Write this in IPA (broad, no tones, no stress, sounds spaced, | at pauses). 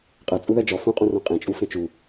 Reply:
qʼ ɜ t͡sʼ u ð ɜ d͡ʒ ɔ f ũ qʼ ũ r õ qʼ ẽ t͡ʃʼ u f ẽ t͡ʃ u